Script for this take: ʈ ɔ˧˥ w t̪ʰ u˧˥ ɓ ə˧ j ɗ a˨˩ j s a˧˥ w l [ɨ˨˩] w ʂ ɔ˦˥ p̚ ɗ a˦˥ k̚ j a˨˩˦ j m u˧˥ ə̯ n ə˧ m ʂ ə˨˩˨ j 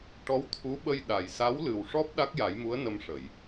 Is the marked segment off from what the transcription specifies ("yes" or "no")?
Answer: no